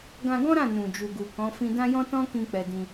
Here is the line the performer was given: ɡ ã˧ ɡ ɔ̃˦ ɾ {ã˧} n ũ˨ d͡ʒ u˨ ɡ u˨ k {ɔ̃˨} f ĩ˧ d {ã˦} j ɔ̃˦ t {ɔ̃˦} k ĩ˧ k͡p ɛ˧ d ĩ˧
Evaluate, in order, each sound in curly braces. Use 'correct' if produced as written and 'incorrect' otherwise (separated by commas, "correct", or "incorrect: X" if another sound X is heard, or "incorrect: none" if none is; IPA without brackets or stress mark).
incorrect: ã˦˨, incorrect: ɔ̃˨˦, correct, correct